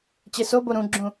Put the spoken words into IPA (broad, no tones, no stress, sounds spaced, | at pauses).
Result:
t͡ɕ e s o b o ɾ ũ ɡ͡ǁ ũ